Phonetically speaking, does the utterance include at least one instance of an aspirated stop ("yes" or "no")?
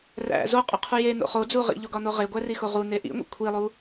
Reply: yes